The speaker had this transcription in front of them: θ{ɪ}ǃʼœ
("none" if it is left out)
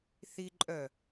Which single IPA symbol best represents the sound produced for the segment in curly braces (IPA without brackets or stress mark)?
i